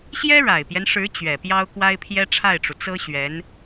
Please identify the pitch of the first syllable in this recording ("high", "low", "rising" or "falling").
high